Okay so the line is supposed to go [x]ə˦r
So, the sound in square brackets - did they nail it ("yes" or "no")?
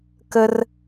no